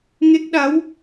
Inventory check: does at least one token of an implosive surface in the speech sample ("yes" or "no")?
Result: yes